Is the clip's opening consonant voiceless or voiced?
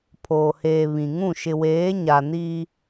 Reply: voiceless